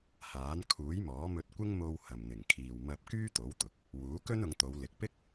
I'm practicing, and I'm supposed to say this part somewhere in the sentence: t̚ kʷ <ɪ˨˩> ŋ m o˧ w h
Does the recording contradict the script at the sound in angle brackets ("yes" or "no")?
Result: yes